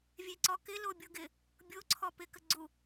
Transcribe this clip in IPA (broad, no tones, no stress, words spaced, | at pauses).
vʲeǀɔkɪ lobʲuɡɪ | bʲoǀʰɔ pɪkə ɡ͡ǀu